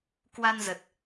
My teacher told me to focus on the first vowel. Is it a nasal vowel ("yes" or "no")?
no